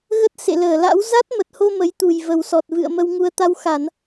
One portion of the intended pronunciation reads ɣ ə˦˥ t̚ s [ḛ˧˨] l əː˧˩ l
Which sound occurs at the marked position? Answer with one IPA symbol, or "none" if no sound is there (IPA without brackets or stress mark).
ḛ˧˨